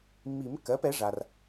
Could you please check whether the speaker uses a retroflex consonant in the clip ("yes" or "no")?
yes